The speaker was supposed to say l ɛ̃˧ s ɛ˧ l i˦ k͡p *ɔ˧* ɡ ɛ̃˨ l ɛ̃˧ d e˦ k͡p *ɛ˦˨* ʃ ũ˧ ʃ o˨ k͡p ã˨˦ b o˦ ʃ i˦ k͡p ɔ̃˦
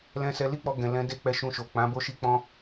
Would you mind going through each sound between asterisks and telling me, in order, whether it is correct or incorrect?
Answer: correct, incorrect

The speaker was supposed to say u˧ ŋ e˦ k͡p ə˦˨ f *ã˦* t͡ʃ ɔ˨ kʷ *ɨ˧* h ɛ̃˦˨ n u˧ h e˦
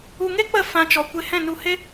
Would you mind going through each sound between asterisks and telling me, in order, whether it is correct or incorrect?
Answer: incorrect, incorrect

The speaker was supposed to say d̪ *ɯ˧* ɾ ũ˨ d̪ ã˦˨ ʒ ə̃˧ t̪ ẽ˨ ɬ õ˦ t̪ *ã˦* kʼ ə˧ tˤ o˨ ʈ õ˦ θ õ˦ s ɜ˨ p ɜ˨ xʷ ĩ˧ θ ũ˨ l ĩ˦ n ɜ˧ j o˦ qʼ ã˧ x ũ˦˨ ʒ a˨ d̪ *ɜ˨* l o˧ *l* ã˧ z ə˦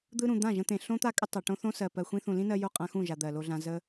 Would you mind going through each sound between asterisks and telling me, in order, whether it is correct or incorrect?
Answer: correct, incorrect, correct, incorrect

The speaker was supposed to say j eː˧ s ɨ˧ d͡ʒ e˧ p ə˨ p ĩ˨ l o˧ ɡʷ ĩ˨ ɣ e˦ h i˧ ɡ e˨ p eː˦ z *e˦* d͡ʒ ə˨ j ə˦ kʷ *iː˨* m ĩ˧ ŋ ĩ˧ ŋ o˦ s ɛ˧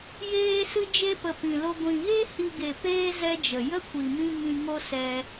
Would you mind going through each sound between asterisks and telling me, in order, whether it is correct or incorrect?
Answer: incorrect, incorrect

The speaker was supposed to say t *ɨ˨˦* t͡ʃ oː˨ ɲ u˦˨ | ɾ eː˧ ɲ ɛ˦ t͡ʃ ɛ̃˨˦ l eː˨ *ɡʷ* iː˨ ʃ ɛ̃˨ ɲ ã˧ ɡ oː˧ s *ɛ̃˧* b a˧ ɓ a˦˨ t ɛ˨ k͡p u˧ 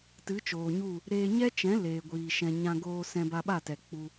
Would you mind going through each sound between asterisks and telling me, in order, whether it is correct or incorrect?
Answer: correct, correct, correct

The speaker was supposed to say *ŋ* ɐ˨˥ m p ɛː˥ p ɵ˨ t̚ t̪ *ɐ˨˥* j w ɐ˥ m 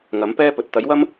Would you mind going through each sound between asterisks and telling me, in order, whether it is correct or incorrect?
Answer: correct, correct

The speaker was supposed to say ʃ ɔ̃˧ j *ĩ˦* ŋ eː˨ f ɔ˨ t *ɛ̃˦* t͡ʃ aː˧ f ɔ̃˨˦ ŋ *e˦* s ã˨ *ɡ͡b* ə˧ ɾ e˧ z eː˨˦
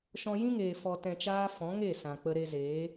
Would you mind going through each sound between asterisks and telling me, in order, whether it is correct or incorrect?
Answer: correct, incorrect, incorrect, incorrect

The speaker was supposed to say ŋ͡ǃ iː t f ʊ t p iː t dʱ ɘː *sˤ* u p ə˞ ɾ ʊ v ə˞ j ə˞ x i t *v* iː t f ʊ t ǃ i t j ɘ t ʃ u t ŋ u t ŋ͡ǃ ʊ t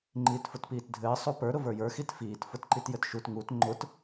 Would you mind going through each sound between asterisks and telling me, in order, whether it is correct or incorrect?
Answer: correct, incorrect

